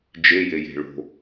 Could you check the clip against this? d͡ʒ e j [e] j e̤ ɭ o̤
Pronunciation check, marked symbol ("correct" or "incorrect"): correct